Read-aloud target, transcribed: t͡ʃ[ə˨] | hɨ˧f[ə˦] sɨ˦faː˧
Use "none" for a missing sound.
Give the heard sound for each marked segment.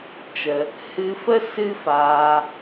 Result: ə˧, ə˦

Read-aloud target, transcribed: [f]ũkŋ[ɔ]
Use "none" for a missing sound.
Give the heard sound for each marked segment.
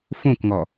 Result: f, ɔ

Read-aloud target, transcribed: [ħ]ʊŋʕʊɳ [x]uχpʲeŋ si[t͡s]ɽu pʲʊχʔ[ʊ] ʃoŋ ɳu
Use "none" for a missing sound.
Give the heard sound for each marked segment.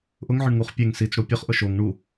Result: ʔ, ŋ, t͡s, ʊ

